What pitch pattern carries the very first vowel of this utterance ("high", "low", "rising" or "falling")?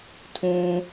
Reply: low